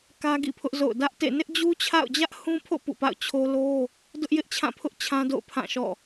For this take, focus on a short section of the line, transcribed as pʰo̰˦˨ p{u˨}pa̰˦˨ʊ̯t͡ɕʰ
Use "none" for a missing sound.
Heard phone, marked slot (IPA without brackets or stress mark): ṵ˦˨